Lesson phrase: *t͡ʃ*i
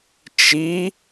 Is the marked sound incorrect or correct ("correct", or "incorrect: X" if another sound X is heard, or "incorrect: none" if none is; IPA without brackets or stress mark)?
correct